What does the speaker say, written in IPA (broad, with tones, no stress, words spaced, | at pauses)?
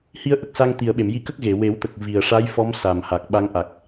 hi˧ə̯ʔə˨˩k̚sa˧ŋt̪i˨˩ə̯ ɓe˨˩˨mji˧kə˦˥k̚ ɣe˨˩˨ we˨˩˦wt̪ə˨˩k̚ vi˨˩ə̯ʂa˧˥jfɔ˧˥m sa˨˩mha˨˩k̚ ɓa˧˥ŋʔa˨˩k̚